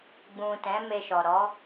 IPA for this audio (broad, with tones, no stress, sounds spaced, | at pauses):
ɡ͡b ũ˨ t ɛ̃˨˦ m e˧ ʃ ɔ˨ ɾ ɔ˨˦